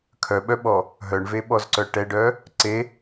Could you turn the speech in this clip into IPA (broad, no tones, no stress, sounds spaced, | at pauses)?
kʰ œ ɓ œ ɓ ɔ | ɦ œ ɳ v e ɓ ɔ z ǀ œ ʈ ɛ ɖ œ | ǀ e